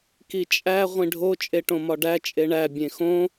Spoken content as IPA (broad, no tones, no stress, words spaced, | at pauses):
kit͡ʃʼæ ʁʷĩɖʱo t͡ʃʼeʈõmɒɖæ t͡ʃʼeɳæ bʲẽxõ